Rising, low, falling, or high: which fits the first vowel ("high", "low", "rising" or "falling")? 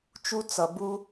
high